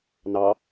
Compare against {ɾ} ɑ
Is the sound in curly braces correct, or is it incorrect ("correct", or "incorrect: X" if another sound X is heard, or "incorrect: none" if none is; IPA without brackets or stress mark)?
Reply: incorrect: n